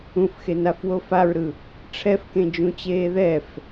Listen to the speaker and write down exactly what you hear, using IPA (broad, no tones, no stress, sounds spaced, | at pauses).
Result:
ũ f x e n a f w o f a ɹ ɾ ɯ | ʈ͡ʂʰ ɛ f k ẽ d͡ʒ ũ t͡ɕ eː ð ɛ f